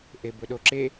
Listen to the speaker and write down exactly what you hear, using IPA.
ʔ e b ɵ ɗ o ǁ e

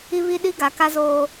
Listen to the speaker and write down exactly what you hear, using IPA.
i˦ β i˦ ɗ i˦ ɡ a˨˦ k a˦ z oː˦

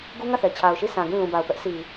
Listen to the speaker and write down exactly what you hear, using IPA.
ɡ u˦ ŋ ä˦˨ θ ɛ˨ t͡ɕʰ a˨ ʊ̯ ʃ i˦˨ s ã˨ ɡ ĩ˦˨ l ũ˨ b a˨ ʊ̯ p ɛ˦ ʔ sʰ i˨

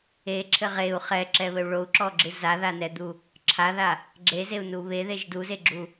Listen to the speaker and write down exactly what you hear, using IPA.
e ǁʰ ɘ ʁ e u̯ χ ɛ ǁ ɛ β ɘ u̯ ɭ o u̯ ǁ ɔ ɡ͡ǁ ɨ z a ð a n ɛ d̪ u | ǁʰ a ð a | ɡ͡ǁ e z e u̯ n u β e ð e ʒ d u z e ɡ͡ǁ u

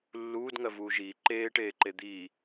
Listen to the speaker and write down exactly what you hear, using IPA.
lː uː d ŋ ɜ v uː ʒ iː ǃ eː ʈ eː ǃ e d̪ iː

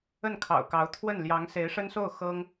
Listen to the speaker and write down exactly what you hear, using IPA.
ə˥˩ n kʰ ɑ̰˨˩ ʊ̯ k ɑ˧˥ ʊ̯ t̪ʰ w ə˥˩ n l j ɑ˧˥ ŋ s e˧˥ ɪ̯ ʂ ə˥ n s o˥˩ ʊ̯ x ɤ˥ ŋ

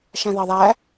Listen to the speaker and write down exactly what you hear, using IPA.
ʃ æ̃ ð ɑ ðˤ æ

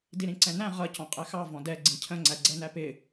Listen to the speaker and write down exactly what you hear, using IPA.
d i ɾ ĩ ǀ ɛ̃ n æ̃ ʁ ʌ c ɔ̃ qʼ ɛ x ɑ v ɔ̃ d ɛ ɡ͡ǀ ĩ cʰ ə̃ ŋ͡ǀ æ ɡ͡ǀ ɛ n æ p ɪ

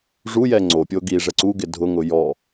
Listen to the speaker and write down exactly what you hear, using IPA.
ʐ u j ɛ ŋ͡ǀ o pʲ o ɡ i ʐ ɛ ǀ u ɡ ɪ dʱ ʊ ŋ ʊ j ɔ

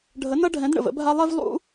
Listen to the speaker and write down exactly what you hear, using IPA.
ɖʱ ə˧˥ n ʌ˥ ɖʱ ɛ̃˧˥ d ɳ ə̰˧ v ə̰˧˥ bʱ a˥ lˠ ɛ˥ v lˠ ṵ˥

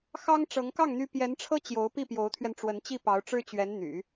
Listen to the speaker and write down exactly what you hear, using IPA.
x ɑ˥ ŋ ʈ͡ʂ ɤ˧˥ ŋ k ɑ˥˩ ŋ n̪ y˥ p j ɛ˧˥ n ʈ͡ʂʰ ɤ˥ t͡ɕ j o˧˥ ʊ̯ p i˥˩ p j o˧˥ ʊ̯ t̪ʰ ɥ ɛ˧ n ʈ͡ʂ w ə˧˥ n t͡ɕ i˥˩ p ɑ˧˥ ʊ̯ ʈ͡ʂ ɻ̩˥ t͡ɕ ɥ ɛ˧˥ n n̪ y̰˨˩˦

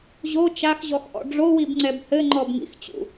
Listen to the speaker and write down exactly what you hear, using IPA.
ʑ o t͡ʃ a x ʑ ɔ x ʔ ɔ̰ ɖ͡ʐ o w i b ŋ͡ǀ ɛ b h ɘ ŋ͡ǃ ɔ b ŋ ḭ x t͡ɕ ṵ

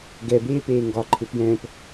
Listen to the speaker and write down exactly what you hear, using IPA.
ɡ ɛ b eː p eː ŋ ɡ ɒ ǃʰ ɪ p j ɛ̃ː p

